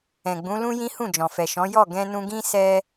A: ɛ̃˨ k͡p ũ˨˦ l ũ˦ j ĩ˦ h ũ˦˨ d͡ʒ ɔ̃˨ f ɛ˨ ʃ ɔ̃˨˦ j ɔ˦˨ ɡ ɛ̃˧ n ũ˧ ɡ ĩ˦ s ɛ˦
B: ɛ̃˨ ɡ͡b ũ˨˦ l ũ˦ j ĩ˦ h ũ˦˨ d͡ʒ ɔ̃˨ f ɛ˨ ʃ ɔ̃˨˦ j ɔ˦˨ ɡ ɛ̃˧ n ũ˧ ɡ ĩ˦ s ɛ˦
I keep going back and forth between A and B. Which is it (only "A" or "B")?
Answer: B